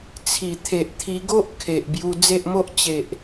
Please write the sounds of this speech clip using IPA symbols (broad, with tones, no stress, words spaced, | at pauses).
t͡sʰi˨˩t̪ʰe˨ʔ t̪ʰi˧ɡo˦ʔ kʰe˨ʔbju˧ d͡ze˦ʔmo˦ʔ t͡ɕe˨ʔ